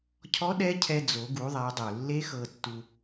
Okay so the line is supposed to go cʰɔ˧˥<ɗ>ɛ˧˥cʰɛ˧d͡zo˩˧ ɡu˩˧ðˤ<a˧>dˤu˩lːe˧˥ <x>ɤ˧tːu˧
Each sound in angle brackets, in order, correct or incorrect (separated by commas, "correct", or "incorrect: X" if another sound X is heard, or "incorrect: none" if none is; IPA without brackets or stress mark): correct, incorrect: a˩˧, correct